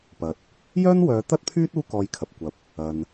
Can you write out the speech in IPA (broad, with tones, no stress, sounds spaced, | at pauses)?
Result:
p ɐ˨ t̚ | j œː˥ n w œː˨˧ t̪ ɐ˥ t̚ pʰ yː˥ t̚ uː˥ k ɔː˧ j kʰ ɐ˨ p̚ kʷ ɐ˨˥ p̚ | ɐ˨ n